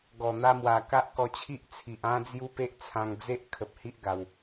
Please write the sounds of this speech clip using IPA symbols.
ɡ ɔ˨˩ n̪ a˧ m w a˨˩ k a˦ ʔ k ɔ˧ t͡ɕʰ i˦ ʔ t͡sʰ i˨ ʔ ã˦ d͡z j u˦ p e˦ ʔ t͡sʰ ã˧ ŋ d͡z e˦ ʔ kʰ ə˨ p̚ h i˦ ʔ ɡ a˨˩ w

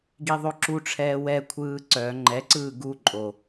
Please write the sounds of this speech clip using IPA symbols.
ɡ i ðˤ o ǁ u ʈ͡ʂʰ ɛː w ɛ kʷʰ ɯː ǀ œ ŋ͡ǃ ɛ ǀ ɯː ɡ u ǃʼ o

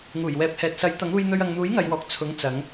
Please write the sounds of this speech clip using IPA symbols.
ŋ uː˨˩ j w ɛː˨ p̚ h ɛː˨ t̚ s ɐ˨˥ j t̪ ɐ˨˥ ŋ uː˧ j n̪ ɵ˧ ɥ ɐ˨ ŋ n̪ uː˨˥ j ŋ ɐ˨ j w ɔː˨ k̚ t͡sʰ ʊ˨˥ ŋ t͡s ɐ˨˧ ŋ

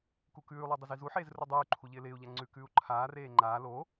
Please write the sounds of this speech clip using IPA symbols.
k u k ʉː lˠ u dˤ ɪ z i z u ħ eː z r u dˤ ʉː ǃʰ u ʎ ɪː l ɪː u̯ ʎ a ŋ͡ǀ ʉ k ʉː u̯ ǃʰ aː r eː ŋ͡ǃ aː l o

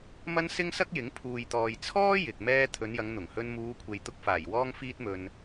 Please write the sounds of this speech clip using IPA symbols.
m ɐ˥ n s ɪ˥ ŋ s ɐ˥ k̚ j ɪ˨˥ ŋ pʰ uː˨ j t̪ ɔː˨ j t͡sʰ ɔː˥ j ɪ˨ k̚ m ɛː˥ t̪ʰ ɵ˨˧ n j ɐ˨˧ ŋ n̪ ʊ˨˩ ŋ h ɵ˧ n m uː˨˧ kʷʰ e˨ j t̪ ʊ˧ k̚ f aː˨˩ j w ɔː˥ ŋ f iː˥ t̚ m ɵ˧ n

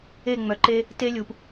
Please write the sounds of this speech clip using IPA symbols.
e˦˨ ŋ͡m œ˨ ǃ e˦ | t e˦ lʲ u˨ p

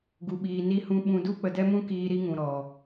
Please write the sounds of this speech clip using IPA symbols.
ɡ u˨ ɓ iː˨ n i˨ h ũ˨ ɓ ũ˧ d u˦ k͡p ə˨ d ɛ˦ m ũ˦ k iː˧ ɾ i˦ ŋ ũ˨ ɾ ɔ˨

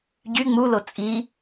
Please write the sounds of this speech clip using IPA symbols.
ɟ y ŋ͡m u l o t͡sʼ i

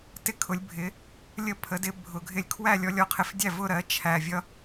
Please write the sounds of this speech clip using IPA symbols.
t ɪ˥˩ kʰ ʊ˩˥ lʲ bʱ ɪ˩˥ | lʲ ə˥˩ pʰ ə˩˥ d ɪ˩˥ bʱ ʊ˩ ɡʱ ɪ˧ lʲ kʰ w æ˥˩ lʲ ɔ˧ lʲ ɔ˩˥ qʰ ɪ˩ f dʲ æ˥˩ v ʊ˥˩ ɾ ɜ˩˥ t͡ʃʰ æ˩ vʲ ʌ˧

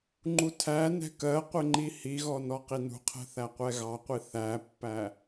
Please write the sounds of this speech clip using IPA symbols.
ŋ͡ǃ u tʰ æ n ɛ̤ k ɜ qʷ ɪ ŋ͡ǃ i h i ɣ ɔ n ɔ q i n ṳ qʰ ɛ̤ θ æ qʷ ɛ ɣ ɑ qʷ i θ æ pː æ

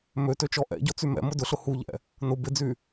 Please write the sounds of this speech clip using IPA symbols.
m ø t ø t͡ʃ ɔ ʔ ɛ̰ ɟ ɔ t͡s y m ɛ̰ m ʊ d ʊ ɬ ʊ h u ʎ ɛ̰ | n ʊ b ɪ d͡z y

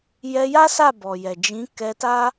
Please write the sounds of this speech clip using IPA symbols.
j ɛ˧ j a˦ s a˦˨ b ɔ˨ j ɛ˨ d͡ʒ ĩ˨˦ k ɛ˧ t a˦

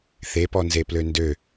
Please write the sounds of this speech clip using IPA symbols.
θ e p ɔ n z e p l ø n d ø

